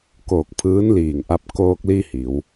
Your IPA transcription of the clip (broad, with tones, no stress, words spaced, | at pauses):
koː˧˩k̚pʰɯː˧˥n liː˧˩ŋʔa˧p̚ koː˧k̚li˧ hi˩˧w